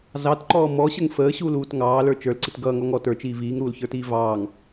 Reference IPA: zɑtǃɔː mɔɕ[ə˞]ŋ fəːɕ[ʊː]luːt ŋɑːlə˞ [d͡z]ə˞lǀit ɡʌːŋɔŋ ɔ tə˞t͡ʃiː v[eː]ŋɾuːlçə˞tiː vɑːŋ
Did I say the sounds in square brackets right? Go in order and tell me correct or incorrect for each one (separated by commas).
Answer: incorrect, incorrect, incorrect, incorrect